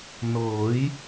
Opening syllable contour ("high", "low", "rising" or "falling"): rising